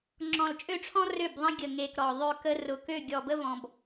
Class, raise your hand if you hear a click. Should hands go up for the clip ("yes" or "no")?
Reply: yes